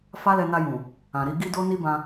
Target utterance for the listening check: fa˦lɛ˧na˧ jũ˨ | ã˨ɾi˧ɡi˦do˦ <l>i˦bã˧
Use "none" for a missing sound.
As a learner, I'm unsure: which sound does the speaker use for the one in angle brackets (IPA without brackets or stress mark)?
n